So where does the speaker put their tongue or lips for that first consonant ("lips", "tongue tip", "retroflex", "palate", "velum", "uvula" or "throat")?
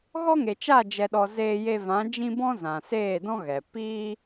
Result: velum